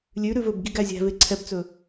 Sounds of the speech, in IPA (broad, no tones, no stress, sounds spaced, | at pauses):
lʲ ʉ ɾ ʉ v ɵ b ɡ i ɡ æ zʲ æ̤ v e ǀʰ ɛ b t͡s ɵ